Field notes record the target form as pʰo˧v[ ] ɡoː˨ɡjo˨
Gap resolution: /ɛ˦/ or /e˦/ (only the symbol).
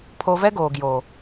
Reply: ɛ˦